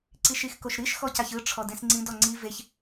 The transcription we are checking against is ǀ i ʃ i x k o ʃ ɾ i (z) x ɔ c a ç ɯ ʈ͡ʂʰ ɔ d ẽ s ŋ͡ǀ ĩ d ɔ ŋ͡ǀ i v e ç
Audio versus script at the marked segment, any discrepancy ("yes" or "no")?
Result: yes